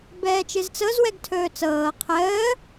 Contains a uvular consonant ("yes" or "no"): yes